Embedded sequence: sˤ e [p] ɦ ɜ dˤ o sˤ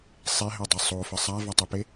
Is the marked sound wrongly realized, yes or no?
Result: yes